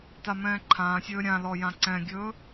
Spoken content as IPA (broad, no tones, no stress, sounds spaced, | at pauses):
t a m ɛ̃ː ǃʰ ãː sʲ ɵː ɾʲ ã l ɔ j ã ǀ ɛ̃ ɡʲ ɵː